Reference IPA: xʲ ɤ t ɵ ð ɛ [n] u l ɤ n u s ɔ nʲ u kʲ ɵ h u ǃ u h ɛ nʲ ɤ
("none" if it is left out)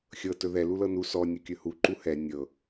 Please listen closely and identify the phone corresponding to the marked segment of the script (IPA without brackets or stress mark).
l